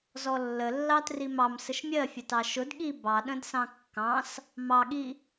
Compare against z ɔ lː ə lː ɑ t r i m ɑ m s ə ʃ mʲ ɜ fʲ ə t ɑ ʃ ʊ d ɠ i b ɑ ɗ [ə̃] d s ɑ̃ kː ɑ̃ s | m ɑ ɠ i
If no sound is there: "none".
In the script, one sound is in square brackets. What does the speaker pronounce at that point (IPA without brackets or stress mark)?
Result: ə̃